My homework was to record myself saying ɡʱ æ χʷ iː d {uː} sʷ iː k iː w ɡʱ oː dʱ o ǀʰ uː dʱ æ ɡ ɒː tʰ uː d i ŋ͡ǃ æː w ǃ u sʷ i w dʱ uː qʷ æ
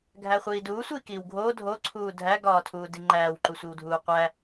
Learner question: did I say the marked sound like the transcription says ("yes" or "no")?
yes